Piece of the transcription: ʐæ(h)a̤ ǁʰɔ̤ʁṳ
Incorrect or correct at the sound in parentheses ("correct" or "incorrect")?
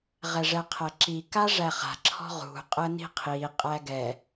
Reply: incorrect